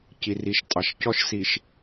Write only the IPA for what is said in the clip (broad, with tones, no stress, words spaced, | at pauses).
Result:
ci˨ri˨ʃtʼɑ˨ʃ cɔ˦ʃ si˨ʃ